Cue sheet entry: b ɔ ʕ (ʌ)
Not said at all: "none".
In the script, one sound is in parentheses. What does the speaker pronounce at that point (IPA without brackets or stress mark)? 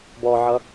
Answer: ʌ